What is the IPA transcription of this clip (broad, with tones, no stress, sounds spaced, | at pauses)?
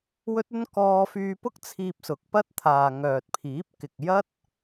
w ɵ˥ t̚ ɵ˥ n k ɔː˧ f yː˧ p ʊ˥ k̚ t͡sʰ iː˧ p̚ s ʊ˨˥ k̚ p ɐ˥ t̚ t̪ʰ aː˨ ŋ œː˨ t̚ pʰ iː˨˥ p̚ k ɪ˨ k̚ j ɐ˥ t̚